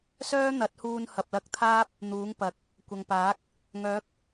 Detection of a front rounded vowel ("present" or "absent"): present